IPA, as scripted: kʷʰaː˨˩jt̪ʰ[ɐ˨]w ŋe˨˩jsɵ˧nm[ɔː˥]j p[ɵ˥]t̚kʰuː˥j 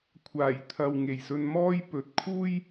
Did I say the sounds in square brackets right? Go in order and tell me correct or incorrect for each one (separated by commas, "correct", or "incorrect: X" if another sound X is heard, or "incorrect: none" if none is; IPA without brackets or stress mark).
correct, correct, incorrect: ɵ˨